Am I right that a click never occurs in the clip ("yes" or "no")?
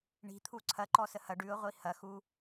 no